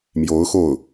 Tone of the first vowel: rising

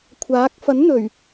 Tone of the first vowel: rising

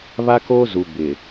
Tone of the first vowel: high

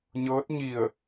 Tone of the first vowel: rising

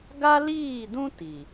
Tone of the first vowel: high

